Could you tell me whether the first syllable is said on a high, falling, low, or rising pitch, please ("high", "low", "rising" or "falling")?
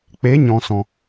rising